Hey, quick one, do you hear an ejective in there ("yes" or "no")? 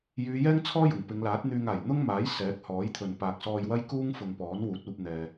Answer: no